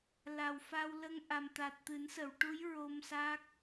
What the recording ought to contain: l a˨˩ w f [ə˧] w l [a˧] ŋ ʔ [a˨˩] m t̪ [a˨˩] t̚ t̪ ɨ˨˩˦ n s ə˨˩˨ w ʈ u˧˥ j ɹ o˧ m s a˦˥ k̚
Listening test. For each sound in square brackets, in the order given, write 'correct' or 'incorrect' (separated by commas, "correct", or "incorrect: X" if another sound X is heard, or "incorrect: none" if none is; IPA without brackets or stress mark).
incorrect: a˧, incorrect: ə˧, correct, correct